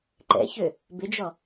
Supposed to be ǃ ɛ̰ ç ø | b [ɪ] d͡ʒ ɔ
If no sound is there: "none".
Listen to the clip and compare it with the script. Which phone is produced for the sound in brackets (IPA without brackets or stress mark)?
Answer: ɪ